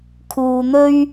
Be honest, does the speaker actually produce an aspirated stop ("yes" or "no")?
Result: yes